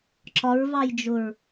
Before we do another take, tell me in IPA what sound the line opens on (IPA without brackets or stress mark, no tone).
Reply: ǁ